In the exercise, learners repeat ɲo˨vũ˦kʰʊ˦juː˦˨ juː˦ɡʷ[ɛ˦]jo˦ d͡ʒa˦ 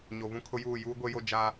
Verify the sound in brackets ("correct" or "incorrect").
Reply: incorrect